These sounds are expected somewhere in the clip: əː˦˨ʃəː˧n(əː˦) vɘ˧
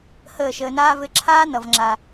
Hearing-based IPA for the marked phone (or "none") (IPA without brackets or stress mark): aː˦